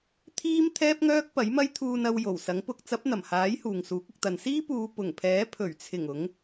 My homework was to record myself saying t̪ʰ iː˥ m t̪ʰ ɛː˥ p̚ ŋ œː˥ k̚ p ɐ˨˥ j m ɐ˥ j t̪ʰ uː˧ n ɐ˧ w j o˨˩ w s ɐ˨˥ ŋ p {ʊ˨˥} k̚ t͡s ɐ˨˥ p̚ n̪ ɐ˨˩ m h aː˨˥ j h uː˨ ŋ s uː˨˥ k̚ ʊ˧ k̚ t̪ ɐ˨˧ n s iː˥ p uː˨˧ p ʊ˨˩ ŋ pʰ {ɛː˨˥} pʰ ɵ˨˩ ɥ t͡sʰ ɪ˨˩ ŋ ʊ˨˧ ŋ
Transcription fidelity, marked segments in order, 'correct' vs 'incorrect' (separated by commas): correct, correct